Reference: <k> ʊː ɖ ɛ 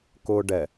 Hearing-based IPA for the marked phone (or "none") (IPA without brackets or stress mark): k